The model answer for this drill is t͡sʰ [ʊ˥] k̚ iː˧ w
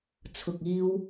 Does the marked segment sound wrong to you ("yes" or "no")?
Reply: yes